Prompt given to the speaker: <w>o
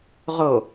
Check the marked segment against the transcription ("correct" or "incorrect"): incorrect